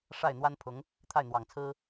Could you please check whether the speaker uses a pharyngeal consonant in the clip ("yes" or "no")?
no